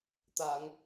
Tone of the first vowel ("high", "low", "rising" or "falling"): low